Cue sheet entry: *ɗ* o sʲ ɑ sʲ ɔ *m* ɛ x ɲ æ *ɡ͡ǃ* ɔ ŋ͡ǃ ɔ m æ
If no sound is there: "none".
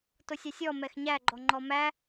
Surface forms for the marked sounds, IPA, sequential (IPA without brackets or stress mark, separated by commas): t, m, ɡ͡ǃ